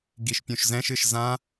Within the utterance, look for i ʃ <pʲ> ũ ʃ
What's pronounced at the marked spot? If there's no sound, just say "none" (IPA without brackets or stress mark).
pʲ